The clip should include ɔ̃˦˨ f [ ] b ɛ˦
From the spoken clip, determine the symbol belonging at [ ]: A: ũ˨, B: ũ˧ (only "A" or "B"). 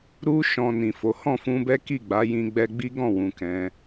B